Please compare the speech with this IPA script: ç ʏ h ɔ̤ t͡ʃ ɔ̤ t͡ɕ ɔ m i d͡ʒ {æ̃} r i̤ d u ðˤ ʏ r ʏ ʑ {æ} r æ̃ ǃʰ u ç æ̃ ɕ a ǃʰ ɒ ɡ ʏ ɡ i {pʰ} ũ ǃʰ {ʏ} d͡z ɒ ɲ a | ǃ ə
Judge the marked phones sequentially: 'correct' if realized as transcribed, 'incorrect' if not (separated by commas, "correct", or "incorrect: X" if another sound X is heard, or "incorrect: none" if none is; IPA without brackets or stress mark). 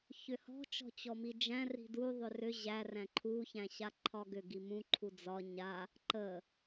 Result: correct, correct, incorrect: m, incorrect: u